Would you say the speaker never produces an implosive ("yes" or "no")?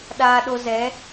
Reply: no